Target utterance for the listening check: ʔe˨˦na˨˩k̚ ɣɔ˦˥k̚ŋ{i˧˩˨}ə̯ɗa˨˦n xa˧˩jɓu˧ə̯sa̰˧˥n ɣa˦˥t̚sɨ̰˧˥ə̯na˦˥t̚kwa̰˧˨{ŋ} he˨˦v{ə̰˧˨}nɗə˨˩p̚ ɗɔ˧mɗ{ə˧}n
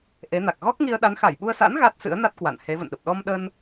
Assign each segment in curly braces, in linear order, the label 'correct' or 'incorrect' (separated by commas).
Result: incorrect, incorrect, correct, correct